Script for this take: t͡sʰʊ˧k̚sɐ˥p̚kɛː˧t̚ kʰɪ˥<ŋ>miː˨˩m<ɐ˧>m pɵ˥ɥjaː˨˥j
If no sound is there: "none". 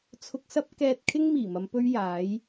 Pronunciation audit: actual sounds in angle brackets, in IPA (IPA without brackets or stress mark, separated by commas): ŋ, ɐ˨˧